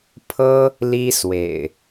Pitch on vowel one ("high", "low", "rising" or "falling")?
high